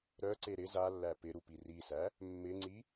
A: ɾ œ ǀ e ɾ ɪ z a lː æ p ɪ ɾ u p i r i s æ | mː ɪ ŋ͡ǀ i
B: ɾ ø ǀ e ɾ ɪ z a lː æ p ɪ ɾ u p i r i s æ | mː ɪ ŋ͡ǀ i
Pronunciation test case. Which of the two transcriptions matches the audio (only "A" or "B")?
A